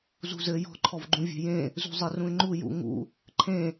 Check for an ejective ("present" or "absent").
absent